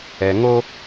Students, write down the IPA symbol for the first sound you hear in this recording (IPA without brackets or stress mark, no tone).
ɛ